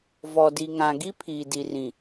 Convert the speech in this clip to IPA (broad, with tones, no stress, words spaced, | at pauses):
vɔ˨di˨ŋã˨ ɡi˦ pʰiː˨di˨rĩ˨